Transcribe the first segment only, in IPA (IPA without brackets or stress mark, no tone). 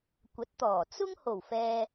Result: kʷ